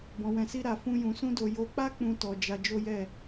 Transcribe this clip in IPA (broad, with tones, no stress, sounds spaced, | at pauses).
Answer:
b ɔ̃˧ w ɛ̃˧ s i˦ ɾ a˧ f ũ˦ j ũ˧ s ũ˦ d o˧ j o˧ k͡p a˦ k͡p ũ˦ t ɔ˧ d͡ʒ a˧ d͡ʒ o˦ j ɛ˦˨